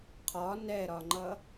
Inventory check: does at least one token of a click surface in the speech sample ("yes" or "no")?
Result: yes